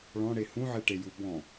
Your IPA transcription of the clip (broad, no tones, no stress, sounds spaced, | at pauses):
ɭ ɔ̃ ɽ e h ũ ʕ e ʈ e j u b ɔ̃